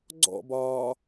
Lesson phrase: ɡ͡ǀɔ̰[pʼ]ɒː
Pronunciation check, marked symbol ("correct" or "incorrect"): incorrect